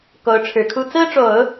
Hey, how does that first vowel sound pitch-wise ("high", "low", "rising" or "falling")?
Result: rising